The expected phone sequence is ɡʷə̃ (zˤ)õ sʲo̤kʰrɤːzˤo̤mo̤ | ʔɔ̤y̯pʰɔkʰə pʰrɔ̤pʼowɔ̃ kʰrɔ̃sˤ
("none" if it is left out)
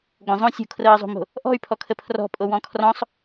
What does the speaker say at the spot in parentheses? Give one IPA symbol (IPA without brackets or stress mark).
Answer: zˤ